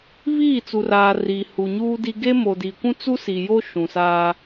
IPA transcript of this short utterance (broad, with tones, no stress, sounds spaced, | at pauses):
β iː˦˨ t͡s u˨ r aː˨ r iː˨ h u˨ ɲ uː˦ d i˦ ɡ e˦ m o˨ d iː˨ kʷ ũ˦ t͡s u˦ s i˨ j o˦ ʃ ũ˨ s aː˦